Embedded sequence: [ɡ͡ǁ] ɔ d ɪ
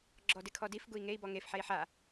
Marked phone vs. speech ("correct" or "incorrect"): correct